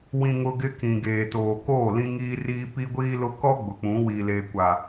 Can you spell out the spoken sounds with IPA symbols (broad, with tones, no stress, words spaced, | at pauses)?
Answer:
wĩ˨ŋʊ˨ ɡɪ˦kĩ˨ ɡeː˨toː˨koː˦˨ lĩ˦ŋiː˦riː˦ pi˦ɡʷiː˦lʊ˦ kɔ˦ ɡ͡bʊ˨k͡pũ˨˦ wiː˨leː˨kʷa˨